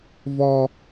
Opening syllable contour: high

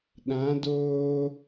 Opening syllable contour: rising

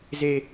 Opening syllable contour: low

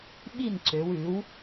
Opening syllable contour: falling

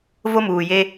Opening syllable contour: high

